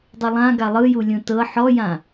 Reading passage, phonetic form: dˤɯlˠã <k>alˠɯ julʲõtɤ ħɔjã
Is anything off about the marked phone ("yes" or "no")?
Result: yes